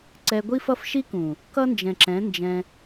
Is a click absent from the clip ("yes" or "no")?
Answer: no